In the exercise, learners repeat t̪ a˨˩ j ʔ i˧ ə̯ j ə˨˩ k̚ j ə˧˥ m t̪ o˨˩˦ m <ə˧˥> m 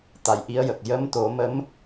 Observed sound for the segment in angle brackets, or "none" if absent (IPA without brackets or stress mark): ə˧˥